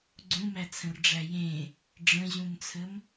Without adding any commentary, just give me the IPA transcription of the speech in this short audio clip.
ɡ͡ǀũmæt͡sʰə̃rɖ͡ʐæ jẽ | ɖ͡ʐə̃ʑũnt͡sʰəm

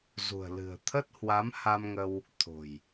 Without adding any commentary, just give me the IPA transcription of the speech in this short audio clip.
zṳ˨˩ə̯ lɨ̤˨˩ə̯ t̪ʰə˦˥t̚hwa˨˦mha˧mŋə˧w | t̪ʰo̤˨˩j

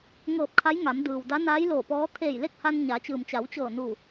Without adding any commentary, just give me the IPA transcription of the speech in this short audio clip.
ŋɤː˧˩p̚ kʰa˧˥jŋa˩˧m dɯː˩w da˧˥naː˧˥j loː˧˩pɔː˧˥ t̪ʰeː˧˩jle˥˨k̚ha˧n ɲa˩˧t͡ɕɯː˩mt͡ɕa˩˧w t͡ɕɤː˧˩ nu˧˩

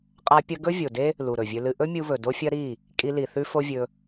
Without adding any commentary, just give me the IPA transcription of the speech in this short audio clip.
qʼa˦pʲɐ˦ ɡɵ˦vʲo˨de˦ | lu˨ɾɵ˨vʲɵ˧lɨ˧ ʔɵ˦mʲu˧βɵ˨ do˦fʲɐ˦ ɾi˦˨ | kʼi˧li˨ θʉ˦fo˦vʲɵ˧

